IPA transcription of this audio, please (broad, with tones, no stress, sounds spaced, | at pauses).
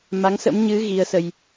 m a˨˦ ŋ s ə̰˧˥ m ɲ ɨ˨˦ ɣ i˨˦ ə̯ s ə˧ j